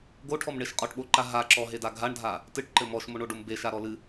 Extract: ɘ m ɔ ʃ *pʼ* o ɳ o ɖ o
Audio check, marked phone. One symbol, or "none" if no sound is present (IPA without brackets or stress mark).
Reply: m